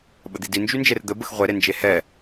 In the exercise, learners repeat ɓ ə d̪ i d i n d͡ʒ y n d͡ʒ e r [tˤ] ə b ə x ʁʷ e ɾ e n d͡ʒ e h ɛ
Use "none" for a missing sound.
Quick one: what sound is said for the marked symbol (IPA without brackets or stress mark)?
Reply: d̪